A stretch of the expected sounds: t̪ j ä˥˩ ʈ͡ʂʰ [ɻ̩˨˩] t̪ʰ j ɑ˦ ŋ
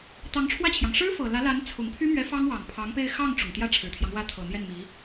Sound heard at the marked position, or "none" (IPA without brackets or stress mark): ɻ̩˨˩